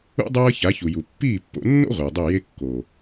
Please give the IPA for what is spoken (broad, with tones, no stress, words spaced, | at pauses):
ṵ˦ dˤɤː˦ça˨˦çu˨ju˨ pːiː˦˨pːo̰˧nːo̰˦ ʁʷɯː˨dˤi˦˨ je˦kːo˨